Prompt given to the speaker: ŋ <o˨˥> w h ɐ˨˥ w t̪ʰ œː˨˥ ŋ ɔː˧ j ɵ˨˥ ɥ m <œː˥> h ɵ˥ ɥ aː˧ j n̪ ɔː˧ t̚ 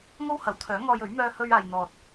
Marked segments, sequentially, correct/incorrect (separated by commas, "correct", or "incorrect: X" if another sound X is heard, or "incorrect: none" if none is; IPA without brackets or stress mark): incorrect: o˥, correct